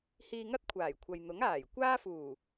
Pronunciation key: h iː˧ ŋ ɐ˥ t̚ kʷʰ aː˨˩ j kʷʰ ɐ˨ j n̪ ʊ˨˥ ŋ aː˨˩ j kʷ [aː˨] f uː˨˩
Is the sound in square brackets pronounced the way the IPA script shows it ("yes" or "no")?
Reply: no